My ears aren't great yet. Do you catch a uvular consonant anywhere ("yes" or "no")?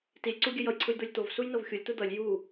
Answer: no